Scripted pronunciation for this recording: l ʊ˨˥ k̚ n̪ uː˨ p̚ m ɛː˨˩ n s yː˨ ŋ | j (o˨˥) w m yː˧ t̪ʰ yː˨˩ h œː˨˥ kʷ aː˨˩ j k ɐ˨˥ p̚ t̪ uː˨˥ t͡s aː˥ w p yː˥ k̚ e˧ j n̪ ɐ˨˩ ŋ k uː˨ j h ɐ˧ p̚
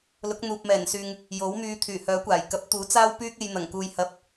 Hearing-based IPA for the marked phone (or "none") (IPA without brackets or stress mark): o˨˥